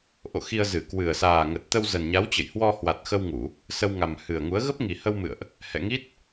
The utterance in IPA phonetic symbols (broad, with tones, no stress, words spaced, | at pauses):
ʔo̰˧˨xi˧ə̯ zɨ˧˩kwɨ˨˩ə̯ saː˨˩ŋə˨˩t̚ t̪ə˧wzə˨˩nɲa˨˦wt͡ɕə̰˧˨j hwɔ˧hwa˨˩t̚xə˧wŋu˧˩˨ | sə˧wŋa˨˩m hɨ˨˩ə̯ŋu˨˦ə̯ ɣə˦˥p̚ŋi˨˩hə˧wmɨ̰˧˨ə̯ʔ | hɛ̰˧˨ŋi˦˥t̚